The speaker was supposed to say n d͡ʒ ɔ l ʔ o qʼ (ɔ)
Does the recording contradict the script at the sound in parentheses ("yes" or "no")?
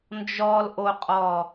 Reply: no